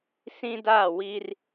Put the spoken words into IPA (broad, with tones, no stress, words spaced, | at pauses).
sĩ˦da˦˨wi˦r